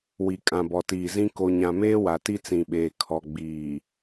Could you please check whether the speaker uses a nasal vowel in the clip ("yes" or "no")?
yes